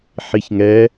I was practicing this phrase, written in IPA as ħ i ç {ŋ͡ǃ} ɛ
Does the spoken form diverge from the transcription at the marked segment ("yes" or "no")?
yes